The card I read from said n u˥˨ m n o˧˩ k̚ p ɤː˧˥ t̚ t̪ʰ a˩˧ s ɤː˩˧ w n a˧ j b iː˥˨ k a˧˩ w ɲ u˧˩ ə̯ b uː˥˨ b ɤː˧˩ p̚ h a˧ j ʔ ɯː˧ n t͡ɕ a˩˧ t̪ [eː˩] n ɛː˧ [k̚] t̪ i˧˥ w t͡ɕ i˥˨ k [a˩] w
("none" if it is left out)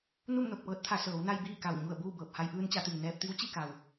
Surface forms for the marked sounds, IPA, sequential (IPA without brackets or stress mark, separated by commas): iː˩, p̚, a˩